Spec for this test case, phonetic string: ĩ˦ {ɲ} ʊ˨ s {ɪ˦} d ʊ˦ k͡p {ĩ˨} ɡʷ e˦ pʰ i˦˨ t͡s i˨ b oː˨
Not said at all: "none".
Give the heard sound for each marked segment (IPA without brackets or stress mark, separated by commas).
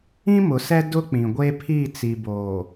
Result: m, ɛ˦, ĩ˨